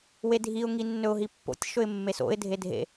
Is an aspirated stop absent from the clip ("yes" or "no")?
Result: yes